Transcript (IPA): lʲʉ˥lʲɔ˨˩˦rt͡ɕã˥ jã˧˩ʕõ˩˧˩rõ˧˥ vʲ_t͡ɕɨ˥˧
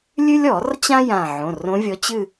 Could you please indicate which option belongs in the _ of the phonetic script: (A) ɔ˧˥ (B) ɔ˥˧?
A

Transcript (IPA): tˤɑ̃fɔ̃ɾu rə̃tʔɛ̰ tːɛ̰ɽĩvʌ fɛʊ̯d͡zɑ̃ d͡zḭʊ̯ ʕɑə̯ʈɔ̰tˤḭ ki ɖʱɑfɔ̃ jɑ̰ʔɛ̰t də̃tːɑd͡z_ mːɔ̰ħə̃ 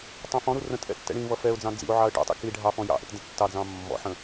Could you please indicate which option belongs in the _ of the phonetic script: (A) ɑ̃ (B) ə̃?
A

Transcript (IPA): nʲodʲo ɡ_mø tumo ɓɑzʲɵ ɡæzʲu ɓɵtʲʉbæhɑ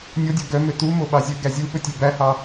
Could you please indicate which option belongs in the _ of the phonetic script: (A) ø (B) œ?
B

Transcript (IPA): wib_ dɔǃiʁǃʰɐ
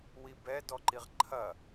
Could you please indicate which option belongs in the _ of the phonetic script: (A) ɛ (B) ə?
A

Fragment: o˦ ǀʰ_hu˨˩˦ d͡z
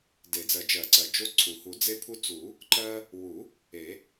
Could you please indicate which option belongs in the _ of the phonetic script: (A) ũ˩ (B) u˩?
B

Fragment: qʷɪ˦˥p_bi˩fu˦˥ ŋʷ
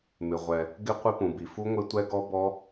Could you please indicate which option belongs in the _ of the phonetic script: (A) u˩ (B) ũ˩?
B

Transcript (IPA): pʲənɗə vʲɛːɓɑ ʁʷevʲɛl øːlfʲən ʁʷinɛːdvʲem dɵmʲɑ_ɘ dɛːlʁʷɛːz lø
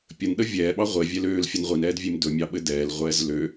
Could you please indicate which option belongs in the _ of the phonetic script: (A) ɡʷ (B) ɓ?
B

